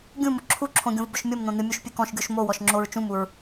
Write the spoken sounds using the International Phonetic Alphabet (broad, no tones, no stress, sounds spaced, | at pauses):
ɡʲ ũ m ʊ ǁʰ u ǁʰ õ ɡʲ õ v b ʊ ʃ mʲ o m n̪ õ n̪ ɨ mʲ u ʃ pʲ ɨ k ɔ̃ ʃ ɡʲ o ʃ m o w ɔ ʃ ŋ͡ǁ o ɹ t͡ʃ ũ m u ɹ